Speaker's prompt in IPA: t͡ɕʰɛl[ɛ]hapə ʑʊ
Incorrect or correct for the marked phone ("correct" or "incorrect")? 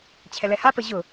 correct